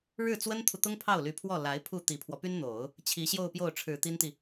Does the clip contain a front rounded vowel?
yes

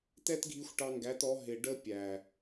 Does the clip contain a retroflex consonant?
yes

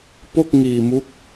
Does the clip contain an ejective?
no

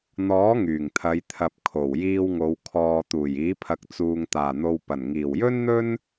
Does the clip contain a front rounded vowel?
yes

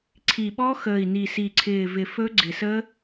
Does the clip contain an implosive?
yes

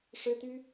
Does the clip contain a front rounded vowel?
yes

